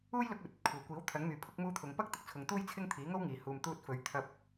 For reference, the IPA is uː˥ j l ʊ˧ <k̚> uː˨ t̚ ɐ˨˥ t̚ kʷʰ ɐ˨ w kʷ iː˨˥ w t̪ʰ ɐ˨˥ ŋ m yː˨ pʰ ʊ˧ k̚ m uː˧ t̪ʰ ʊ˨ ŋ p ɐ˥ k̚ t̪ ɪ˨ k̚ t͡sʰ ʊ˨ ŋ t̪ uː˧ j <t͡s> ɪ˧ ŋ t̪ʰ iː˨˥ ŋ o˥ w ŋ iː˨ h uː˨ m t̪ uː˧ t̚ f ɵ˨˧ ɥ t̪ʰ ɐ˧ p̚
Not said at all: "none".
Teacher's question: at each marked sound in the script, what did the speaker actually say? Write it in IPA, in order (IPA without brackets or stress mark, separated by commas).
k̚, t͡sʰ